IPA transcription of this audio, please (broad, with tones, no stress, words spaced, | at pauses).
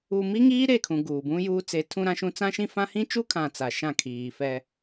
u˨mi˦ ŋiː˦ɾe˦˨kʰũ˨ ɡuː˨bũ˦juː˦ t͡se˨˦ tʰũ˦ɾã˦ʃũ˦ t͡sã˦ʃĩ˦fã˦ hĩ˦t͡ʃu˦kʰã˨ t͡sa˨ʃã˦˨ kʰiː˨fɛ˦